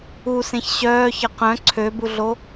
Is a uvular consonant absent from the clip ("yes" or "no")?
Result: no